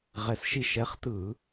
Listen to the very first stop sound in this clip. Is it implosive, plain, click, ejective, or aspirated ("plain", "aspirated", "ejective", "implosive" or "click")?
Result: plain